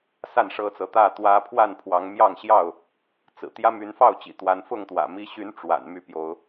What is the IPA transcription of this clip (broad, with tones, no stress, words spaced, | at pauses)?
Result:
sa˥˨nʂɤ˦t͡sɤ˨˦ t̪ä˥˨t̪wä˦ pʰwa˥˨npʰwɑ˨˦ŋmjɑ˥˨ŋɕjɑ˥˨ʊ̯ | t͡sɹ̩˨˩ t̪jä˦my˨˦nfɑ˥˨ʊ̯t͡ɕḭ˨˩ t̪wa˨˦nfʊ˥˨ŋt̪wä̰˨˩ mi˨˦ɕy˨˦n ʈ͡ʂwa̰˨˩nmy˥˨pjo˨˦ʊ̯